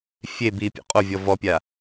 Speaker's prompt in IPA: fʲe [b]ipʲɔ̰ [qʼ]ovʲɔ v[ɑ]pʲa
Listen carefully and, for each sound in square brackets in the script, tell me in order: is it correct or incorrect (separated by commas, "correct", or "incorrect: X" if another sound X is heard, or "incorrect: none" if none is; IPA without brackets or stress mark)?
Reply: correct, correct, incorrect: ɔ